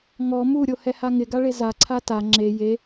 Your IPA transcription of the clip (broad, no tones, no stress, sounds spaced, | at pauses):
ŋ ɔ m u ɾʲ o h ɛ h a ŋ ɪ ɡ a ɭ e z a ǀʰ a t a ŋ͡ǁ e j e